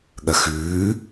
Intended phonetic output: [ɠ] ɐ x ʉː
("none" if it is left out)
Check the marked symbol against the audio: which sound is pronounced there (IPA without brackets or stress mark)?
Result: ɠ